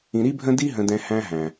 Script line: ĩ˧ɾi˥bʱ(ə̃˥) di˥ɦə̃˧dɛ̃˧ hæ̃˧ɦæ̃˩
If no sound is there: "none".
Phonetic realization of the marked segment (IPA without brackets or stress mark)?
ə̃˥